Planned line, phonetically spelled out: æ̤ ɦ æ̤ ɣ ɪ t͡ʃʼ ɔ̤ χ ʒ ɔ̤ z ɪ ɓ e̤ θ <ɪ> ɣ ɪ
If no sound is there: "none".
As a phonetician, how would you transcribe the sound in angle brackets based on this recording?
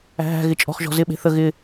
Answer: ə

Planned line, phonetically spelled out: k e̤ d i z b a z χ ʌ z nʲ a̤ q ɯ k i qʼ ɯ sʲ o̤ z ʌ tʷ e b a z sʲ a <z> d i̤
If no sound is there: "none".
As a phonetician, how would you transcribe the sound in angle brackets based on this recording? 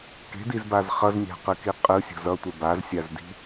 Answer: z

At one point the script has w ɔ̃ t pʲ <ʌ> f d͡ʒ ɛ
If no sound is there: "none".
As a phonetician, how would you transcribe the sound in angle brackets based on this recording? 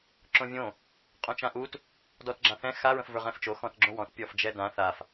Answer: ɔ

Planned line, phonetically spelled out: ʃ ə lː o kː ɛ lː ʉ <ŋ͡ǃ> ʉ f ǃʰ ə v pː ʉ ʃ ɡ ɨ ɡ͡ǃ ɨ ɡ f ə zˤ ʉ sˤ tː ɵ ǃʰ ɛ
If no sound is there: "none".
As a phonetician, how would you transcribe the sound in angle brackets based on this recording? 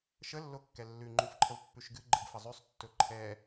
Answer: ŋ͡ǃ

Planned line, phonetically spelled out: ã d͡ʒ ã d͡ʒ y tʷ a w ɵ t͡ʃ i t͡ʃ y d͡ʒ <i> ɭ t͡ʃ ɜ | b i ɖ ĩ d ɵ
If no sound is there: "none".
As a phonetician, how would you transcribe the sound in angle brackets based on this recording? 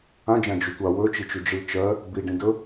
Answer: i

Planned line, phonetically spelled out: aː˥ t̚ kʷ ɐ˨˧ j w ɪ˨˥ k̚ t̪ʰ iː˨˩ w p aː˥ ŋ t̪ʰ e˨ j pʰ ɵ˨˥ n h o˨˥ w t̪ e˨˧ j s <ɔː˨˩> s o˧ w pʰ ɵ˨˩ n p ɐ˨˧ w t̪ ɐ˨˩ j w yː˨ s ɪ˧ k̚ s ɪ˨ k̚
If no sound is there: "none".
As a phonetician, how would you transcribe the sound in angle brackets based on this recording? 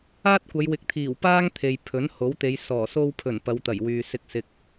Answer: ɔː˨˩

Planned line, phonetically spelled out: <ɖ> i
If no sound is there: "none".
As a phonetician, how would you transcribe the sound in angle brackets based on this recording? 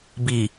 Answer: b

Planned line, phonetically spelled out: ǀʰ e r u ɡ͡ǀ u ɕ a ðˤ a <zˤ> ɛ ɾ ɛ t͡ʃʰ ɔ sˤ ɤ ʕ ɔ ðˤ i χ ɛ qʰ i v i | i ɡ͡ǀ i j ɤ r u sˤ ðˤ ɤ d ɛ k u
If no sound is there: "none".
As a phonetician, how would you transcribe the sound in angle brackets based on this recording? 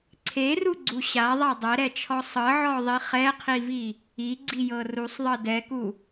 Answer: dˤ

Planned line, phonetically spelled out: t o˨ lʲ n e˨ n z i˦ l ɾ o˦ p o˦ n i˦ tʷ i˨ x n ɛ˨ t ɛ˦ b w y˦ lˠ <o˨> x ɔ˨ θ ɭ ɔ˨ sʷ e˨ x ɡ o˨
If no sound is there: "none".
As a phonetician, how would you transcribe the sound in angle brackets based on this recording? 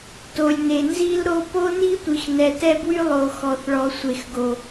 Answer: o˨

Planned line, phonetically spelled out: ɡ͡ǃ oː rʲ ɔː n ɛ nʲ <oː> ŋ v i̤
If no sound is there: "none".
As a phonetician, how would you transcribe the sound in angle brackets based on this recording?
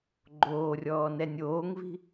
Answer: oː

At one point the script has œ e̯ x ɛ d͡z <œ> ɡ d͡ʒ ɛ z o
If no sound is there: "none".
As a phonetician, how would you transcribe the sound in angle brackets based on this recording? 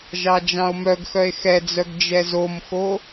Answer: œ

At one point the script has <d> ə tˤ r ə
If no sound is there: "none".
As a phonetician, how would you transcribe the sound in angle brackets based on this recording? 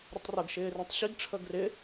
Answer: ɾ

